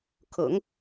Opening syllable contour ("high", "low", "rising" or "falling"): low